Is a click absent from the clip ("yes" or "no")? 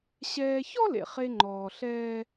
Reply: no